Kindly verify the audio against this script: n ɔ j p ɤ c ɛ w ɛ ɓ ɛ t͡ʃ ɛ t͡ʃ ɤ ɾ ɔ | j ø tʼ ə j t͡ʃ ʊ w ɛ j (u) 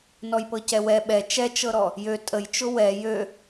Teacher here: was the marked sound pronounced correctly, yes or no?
no